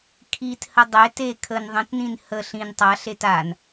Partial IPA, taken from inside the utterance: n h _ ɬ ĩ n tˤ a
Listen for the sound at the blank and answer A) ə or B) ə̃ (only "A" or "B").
A